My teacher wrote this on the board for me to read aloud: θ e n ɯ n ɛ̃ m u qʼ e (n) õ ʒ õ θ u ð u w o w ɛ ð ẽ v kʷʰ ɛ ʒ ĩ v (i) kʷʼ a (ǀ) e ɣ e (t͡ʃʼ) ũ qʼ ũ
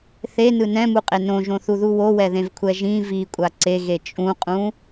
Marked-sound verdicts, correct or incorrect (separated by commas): correct, correct, correct, correct